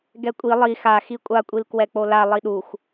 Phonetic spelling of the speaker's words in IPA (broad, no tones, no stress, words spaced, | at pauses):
ɡɛkʷʼi lˠi xa xikʷʼakʷʼil kwɛk͡pola lˠiɗuxʷ